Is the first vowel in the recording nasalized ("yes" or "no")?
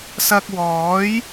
no